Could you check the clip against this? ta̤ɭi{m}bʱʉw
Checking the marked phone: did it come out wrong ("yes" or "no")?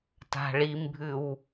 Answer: no